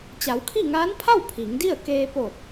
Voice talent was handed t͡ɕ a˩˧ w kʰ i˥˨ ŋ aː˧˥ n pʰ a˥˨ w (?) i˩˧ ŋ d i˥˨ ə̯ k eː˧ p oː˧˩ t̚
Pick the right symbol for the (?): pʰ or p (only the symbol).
pʰ